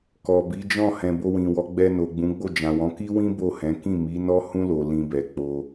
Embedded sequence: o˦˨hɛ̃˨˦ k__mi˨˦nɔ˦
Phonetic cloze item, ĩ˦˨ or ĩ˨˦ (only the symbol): ĩ˦˨